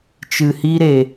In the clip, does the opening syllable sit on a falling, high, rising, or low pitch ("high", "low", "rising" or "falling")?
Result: low